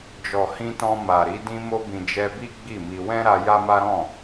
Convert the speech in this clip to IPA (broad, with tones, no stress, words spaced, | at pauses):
d͡ʒɔ˨hĩ˧tɔ̃˧ ma˨ɾi˨˦ dĩ˧mo˧bĩ˨ d͡ʒɛ˧bi˦ ɡ͡bi˦˨mi˧ wɛ̃˦ɾa˧ ja˦ma˦ ɾɔ̃˦˨